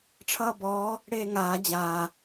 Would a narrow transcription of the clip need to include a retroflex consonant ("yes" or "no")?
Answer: yes